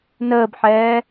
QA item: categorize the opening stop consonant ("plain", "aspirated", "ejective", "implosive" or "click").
plain